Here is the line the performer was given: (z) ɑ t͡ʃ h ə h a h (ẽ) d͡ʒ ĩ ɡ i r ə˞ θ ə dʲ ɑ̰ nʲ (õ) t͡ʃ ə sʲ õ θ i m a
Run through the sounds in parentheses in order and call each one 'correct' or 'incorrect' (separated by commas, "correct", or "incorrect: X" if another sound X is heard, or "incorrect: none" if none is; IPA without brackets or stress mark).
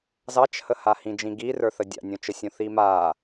correct, incorrect: ĩ, correct